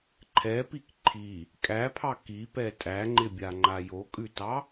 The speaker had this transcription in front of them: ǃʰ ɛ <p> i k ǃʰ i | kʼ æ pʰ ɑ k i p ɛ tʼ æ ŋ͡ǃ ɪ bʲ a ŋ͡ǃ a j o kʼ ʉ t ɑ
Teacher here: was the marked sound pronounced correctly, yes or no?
yes